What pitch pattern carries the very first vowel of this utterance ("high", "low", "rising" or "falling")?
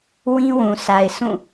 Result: high